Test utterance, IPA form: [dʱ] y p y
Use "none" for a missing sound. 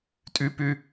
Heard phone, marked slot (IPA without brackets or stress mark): tʼ